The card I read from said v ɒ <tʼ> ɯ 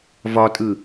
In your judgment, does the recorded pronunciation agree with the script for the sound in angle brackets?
yes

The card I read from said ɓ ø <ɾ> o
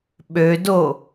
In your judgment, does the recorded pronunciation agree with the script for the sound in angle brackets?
no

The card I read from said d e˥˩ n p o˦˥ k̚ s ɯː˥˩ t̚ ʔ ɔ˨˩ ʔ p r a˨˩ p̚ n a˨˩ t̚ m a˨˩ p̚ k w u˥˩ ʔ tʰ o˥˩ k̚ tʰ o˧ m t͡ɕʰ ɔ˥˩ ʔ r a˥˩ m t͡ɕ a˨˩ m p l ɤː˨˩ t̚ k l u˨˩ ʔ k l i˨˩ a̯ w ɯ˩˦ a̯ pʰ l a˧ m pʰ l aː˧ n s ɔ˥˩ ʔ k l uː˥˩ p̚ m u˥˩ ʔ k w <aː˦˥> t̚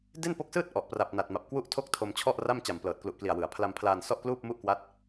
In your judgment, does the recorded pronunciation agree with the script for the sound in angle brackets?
no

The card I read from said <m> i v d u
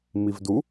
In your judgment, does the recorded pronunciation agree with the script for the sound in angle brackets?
yes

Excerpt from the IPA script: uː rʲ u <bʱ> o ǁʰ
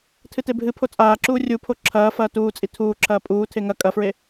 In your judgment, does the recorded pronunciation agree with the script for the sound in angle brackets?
no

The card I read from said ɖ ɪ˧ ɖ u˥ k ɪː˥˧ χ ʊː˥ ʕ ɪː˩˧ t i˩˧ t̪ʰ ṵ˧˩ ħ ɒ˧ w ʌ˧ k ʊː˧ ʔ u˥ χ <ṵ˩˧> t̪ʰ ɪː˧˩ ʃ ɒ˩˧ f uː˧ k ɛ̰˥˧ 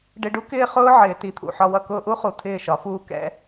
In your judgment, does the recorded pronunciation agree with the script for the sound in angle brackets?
no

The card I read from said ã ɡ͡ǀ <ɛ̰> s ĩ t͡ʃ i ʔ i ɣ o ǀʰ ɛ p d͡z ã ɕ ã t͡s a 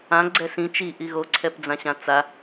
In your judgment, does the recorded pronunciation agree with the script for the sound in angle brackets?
no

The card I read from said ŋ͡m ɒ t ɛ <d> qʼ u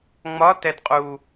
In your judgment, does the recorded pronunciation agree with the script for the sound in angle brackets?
yes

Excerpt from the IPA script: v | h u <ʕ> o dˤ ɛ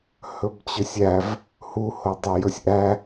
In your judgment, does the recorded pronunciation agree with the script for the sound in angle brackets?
no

